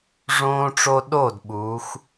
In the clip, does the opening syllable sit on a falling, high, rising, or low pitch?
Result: high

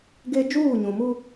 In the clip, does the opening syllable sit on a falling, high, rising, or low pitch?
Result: high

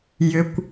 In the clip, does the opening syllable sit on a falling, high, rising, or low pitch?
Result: low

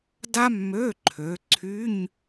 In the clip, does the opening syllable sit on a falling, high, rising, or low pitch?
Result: high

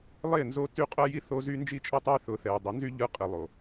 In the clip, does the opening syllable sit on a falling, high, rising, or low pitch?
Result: falling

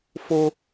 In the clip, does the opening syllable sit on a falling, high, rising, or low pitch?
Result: high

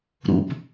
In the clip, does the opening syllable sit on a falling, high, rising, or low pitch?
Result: low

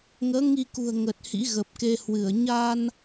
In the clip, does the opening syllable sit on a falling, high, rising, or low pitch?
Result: rising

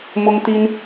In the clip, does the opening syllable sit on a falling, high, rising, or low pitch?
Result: high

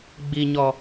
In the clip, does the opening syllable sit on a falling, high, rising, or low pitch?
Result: low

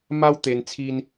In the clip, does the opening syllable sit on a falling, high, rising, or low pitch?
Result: high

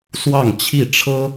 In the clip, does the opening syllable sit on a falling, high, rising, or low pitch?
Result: falling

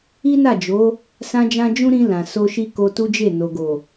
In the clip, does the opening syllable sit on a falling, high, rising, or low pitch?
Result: high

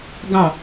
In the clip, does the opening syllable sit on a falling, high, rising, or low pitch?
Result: falling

